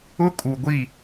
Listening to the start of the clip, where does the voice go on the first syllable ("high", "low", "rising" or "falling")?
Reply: high